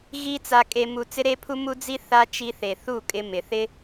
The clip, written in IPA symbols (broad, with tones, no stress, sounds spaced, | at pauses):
ɣ i˦ t͡s a˧ kʼ e˧ m u˧ t͡s ɪ˦ ɾ e˦ pʰ u˦ m u˦ d͡z i˦ θ a˦ t͡ʃ i˧ θ e˨ θ u˦˨ kʼ ɪ˧ m ɪ˨ θ ɪ˦